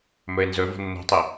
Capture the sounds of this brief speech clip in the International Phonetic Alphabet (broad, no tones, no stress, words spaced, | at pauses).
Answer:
mɵɪ̯nzɵvo̤ nːo̤tˤe